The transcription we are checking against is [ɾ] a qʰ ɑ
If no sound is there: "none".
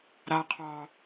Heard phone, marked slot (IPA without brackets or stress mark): ɾ